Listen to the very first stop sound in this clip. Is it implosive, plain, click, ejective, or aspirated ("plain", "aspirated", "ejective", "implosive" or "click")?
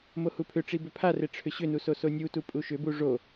aspirated